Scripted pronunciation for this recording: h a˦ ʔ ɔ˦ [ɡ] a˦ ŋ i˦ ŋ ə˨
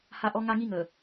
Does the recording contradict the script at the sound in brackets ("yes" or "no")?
yes